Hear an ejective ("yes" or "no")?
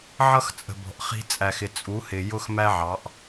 yes